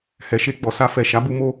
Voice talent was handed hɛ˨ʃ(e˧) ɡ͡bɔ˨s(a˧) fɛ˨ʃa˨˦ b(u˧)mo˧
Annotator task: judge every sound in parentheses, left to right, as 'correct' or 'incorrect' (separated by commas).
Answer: correct, correct, correct